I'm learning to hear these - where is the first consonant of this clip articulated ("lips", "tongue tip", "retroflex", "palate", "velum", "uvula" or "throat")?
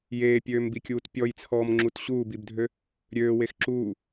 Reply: palate